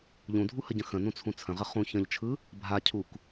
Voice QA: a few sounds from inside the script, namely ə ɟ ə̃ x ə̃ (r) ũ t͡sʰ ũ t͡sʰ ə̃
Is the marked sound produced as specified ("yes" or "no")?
no